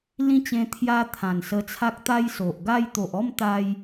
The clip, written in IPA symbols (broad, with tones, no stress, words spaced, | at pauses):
lĩ˦t͡ɕẽ˧ t̪ʰja˦ t̪ʰã˨˩nsə˧t͡sʰa˦k̚ t̪a˦jso˨ʔɡa˦j t̪o˨ʔɔ˥˧mt̪a˧j